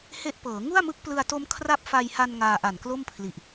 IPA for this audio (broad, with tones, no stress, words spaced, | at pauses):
he˦˥ʔpɤː˩˦ ŋu˥˩a̯mɯ˦˥k̚plɯ˧a̯to˦˥m kʰra˦˥p̚fa˧jha˧n ŋaː˧ʔa˨˩nklo˥˩mpʰli˨˩ʔ